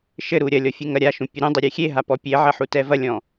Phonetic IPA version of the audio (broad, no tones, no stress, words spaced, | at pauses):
ʃɘɾu ɾʲɐlʲɔ fʲɨŋɐɾʲaʃũ pʲeɾũdˤi ɾʲexʲeɦa pɔpʲeʕɐ ħutɛvɐlʲɔ̃